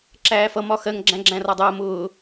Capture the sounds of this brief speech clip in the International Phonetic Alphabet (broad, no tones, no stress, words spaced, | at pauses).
ǁæːfʌ mɒxɜŋ ɡ͡ǁæ̃ɡ͡ǁæ̃rɒdˤəː mʊː